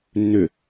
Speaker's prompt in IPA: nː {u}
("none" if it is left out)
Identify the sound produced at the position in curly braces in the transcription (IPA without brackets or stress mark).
ʏ